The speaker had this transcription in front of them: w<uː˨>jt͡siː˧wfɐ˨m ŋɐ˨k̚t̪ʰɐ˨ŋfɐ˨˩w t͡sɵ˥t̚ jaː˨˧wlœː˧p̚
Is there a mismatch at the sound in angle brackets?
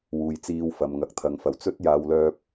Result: no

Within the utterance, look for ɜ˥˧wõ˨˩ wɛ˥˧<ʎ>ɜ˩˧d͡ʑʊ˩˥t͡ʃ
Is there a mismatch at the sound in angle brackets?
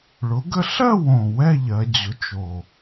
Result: no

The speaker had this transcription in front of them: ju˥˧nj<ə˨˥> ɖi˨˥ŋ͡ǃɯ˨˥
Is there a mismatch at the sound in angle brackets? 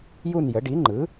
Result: no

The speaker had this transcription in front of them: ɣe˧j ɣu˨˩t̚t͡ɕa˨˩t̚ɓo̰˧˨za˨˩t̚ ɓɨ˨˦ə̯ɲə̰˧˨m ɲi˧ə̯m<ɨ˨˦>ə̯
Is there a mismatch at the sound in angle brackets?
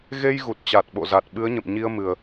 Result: yes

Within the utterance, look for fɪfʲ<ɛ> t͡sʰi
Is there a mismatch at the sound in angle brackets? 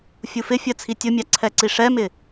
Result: yes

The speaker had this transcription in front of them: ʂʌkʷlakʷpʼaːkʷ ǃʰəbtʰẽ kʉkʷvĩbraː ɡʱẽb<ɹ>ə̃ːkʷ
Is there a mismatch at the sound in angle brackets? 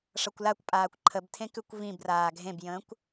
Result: yes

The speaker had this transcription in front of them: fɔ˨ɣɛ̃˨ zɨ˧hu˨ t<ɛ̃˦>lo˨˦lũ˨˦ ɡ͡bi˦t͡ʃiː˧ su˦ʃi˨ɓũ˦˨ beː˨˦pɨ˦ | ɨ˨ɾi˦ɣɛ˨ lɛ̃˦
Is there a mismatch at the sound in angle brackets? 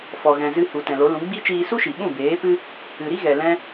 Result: yes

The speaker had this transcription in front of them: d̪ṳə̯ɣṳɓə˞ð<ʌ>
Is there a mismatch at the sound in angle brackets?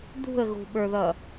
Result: no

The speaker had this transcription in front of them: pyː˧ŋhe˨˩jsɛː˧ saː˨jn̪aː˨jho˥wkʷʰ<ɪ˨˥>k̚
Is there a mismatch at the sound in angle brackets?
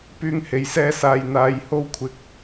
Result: no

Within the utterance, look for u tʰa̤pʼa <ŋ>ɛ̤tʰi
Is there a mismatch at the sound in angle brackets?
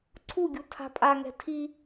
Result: no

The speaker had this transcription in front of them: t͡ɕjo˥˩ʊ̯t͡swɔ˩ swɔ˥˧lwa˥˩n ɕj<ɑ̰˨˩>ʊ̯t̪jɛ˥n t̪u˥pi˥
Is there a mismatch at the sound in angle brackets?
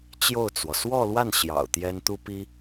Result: no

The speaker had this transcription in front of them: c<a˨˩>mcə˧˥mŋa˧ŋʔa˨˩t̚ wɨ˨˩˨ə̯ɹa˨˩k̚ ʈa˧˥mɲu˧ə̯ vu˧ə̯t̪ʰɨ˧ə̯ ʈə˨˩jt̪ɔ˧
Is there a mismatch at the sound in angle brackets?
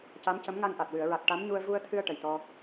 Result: yes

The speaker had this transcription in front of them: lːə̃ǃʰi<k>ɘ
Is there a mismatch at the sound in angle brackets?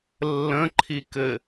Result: no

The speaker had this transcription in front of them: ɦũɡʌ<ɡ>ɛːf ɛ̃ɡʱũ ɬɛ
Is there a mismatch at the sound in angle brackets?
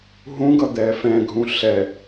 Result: yes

